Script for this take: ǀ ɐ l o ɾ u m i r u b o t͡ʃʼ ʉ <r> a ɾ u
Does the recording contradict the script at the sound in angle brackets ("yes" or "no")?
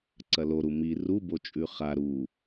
yes